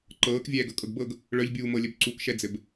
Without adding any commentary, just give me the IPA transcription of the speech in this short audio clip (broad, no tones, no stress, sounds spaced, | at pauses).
ǃ ɤː k vʲ ɛː ɡ ɤ kʼ ɤ ɡ b ɤ ɡ | ɭ œ ʎ bʲ uː m ɤ lʲ ɘ b ǀ u k ʃ ɛ d͡z ɘ b